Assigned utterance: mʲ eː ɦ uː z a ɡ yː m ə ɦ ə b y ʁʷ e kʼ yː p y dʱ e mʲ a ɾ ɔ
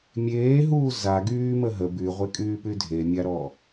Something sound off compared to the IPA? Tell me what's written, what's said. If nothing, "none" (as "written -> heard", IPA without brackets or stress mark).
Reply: none